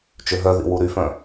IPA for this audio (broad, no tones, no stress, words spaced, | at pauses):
t͡ʃøɦœðḭ wuɾyfœ̃